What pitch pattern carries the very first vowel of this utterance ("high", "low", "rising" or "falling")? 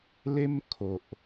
high